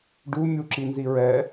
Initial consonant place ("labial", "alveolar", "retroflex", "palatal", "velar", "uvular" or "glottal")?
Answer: retroflex